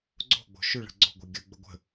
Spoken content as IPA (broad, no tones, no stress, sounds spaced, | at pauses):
ɡ͡ǀ o̤ ɡ͡b o̤ ʃ ʏ ɭ ə̤ ɡ͡ǀ o̤ ɡʷ ɛ ɡʲ ə ɡ͡b ə ɡʷ ə̤